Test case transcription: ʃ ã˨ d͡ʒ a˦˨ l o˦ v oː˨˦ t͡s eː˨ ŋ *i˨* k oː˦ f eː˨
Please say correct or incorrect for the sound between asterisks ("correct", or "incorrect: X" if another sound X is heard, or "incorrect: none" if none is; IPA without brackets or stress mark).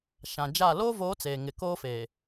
incorrect: ɪ˨